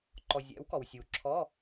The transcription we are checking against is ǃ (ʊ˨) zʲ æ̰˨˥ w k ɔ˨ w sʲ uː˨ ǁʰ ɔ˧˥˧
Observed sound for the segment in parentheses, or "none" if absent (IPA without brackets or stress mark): ɔ˨